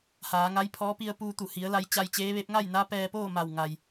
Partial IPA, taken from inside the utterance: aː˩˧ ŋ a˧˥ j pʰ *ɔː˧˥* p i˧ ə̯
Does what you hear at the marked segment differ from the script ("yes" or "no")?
no